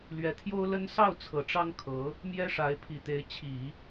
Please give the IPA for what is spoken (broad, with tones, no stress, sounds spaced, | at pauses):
l ɥ ɛ˧˥ t̪ʰ j o˥ ʊ̯ l ə˥ n s ɑ˥˩ ʊ̯ t͡sʰ ɤ˨˩ ʈ͡ʂ ɑ˥ ŋ kʰ ɤ˧˥ | m j ɛ˥ ʂ a˧˥ ɪ̯ pʰ i˨˩ t̪ e˧˥ ɪ̯ t͡ɕʰ i˨˩˦